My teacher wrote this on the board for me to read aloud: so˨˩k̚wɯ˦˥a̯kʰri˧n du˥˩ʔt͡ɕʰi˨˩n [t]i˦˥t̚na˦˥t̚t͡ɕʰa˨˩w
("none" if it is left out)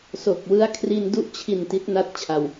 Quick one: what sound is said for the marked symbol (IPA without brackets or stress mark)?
t